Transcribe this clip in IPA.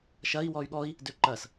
ʃ ɐ i̯ w ɔ y̯ ɠ ɔ i̯ | d ø ǃ ɐ s

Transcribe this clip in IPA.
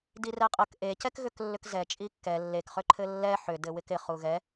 d i r ɛ qʼ ə k ʔ e c ɛ k ɣ ʏ k lː ʏ k z ɛ t͡ʃʼ i kː ɛ lː e k χ ʏ ǃʰ ɘ lː ɛ ħ ʏ d ɘ w ɪ k ɪ χ u ɣ ɛ

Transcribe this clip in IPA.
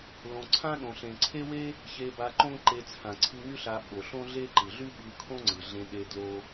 l õ˩ ǀʰ ã˥ ɗ õ˩ ɬ ẽ˩ ǀʰ e˥ w e˥ | ç e˧ b a˧ ǃ õ˥ ǃ e˧ t͡sʰ ã˩ ǀʰ ɯ˧ ŋ y˥ ɬ a˧ ɓ o˩ ɬ õ˥ ɮ e˥ ǃ ɯ˩ ɮ y˥ ɓ ɯ˧ kʰ õ˥ ŋ͡ǀ ɯ˩ ɮ ẽ˧ ɗ e˧ d l o˧

